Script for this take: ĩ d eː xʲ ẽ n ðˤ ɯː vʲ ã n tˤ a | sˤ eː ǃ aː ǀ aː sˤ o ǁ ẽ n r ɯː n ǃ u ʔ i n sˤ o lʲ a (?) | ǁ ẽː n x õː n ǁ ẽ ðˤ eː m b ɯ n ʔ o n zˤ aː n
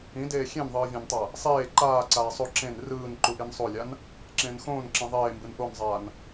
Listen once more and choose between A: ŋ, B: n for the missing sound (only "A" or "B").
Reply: B